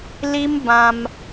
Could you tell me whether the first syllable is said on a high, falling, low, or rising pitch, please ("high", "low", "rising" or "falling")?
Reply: high